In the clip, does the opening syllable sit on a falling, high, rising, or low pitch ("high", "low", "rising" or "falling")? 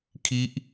falling